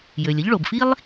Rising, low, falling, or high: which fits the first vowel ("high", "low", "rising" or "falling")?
low